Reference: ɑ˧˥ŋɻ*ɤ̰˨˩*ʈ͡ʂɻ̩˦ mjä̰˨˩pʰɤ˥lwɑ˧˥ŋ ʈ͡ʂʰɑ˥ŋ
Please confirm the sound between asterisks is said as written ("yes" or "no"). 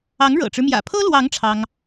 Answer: yes